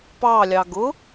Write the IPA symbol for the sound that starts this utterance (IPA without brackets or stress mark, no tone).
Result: p